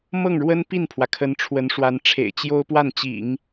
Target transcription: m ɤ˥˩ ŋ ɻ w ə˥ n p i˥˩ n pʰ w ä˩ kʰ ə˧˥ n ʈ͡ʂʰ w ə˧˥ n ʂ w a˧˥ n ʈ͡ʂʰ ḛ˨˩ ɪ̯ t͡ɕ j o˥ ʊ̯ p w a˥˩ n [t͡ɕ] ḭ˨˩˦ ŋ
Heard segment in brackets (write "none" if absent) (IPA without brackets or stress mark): t͡ɕ